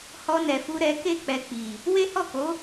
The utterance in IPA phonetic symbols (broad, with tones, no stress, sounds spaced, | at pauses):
h ɔ˧ n ɛ˨ f u˧ ɾ ɛ˧ k e˦ k͡p ɛ˧ k͡p i˨ | w e˦ h ɔ˦˨ k o˨˦